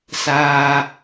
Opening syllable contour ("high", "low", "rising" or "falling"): low